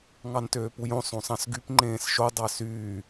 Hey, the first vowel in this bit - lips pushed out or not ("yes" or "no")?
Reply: no